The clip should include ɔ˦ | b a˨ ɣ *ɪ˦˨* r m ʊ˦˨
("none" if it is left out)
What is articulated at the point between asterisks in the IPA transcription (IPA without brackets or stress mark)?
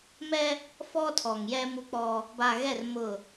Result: ɛ˦˨